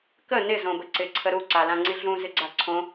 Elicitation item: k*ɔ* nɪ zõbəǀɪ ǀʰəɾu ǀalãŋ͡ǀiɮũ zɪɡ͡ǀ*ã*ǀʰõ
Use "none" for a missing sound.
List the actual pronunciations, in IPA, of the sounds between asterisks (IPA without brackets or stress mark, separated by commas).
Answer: ə, a